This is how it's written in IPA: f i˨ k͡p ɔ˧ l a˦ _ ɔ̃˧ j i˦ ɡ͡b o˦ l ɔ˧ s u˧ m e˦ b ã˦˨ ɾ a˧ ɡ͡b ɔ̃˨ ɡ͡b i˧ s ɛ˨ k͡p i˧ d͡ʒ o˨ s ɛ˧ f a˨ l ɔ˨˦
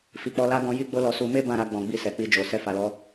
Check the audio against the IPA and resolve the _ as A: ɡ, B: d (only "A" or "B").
A